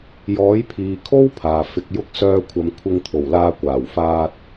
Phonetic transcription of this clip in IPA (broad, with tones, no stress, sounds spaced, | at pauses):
j ɔː˨˥ j pʰ iː˨ kʰ o˥ w pʰ aː˨ f ɪ˧ k̚ j ʊ˥ k̚ s œː˧ kʷʰ ɐ˨˧ m kʷʰ ɪ˧ ŋ t̪ʰ o˨˩ w l aː˧ kʷ aː˨˩ w f aː˧ t̚